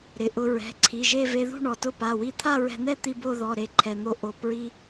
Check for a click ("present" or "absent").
present